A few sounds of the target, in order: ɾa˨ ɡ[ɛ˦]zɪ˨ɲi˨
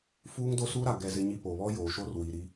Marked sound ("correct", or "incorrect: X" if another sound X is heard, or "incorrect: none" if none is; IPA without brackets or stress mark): incorrect: ɛ˨